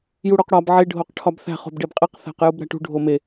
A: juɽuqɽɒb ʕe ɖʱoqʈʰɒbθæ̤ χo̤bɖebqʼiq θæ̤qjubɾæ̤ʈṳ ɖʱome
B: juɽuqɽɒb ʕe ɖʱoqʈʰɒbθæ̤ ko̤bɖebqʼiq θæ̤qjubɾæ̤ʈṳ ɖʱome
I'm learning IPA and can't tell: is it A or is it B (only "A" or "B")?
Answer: A